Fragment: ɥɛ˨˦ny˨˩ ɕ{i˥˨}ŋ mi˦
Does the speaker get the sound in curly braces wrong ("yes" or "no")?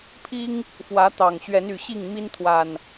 no